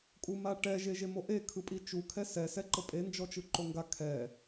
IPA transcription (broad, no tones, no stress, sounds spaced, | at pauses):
kʼ u m a ʈ ɛ ʒ e ʒ e m o ʔ e kʰ ɯ pʼ i t͡ʃ u kʰ ɛ s ɛ s ɛ ǃ ɤ pʼ e n d͡ʒ ɔ t͡ʃ ɯ ǃ o ŋ ɡ a kʰ ɛ